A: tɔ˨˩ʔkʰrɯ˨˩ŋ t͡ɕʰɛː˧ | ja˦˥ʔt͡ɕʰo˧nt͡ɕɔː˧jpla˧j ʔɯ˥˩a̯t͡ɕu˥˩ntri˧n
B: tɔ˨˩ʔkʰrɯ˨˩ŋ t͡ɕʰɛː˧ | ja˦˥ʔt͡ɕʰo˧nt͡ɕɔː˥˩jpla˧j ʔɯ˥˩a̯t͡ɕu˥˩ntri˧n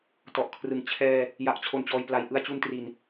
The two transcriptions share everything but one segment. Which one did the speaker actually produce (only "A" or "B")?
A